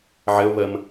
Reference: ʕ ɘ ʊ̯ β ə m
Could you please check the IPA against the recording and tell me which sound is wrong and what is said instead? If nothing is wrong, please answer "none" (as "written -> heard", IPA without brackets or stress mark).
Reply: none